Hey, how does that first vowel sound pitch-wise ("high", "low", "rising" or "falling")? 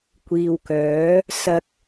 low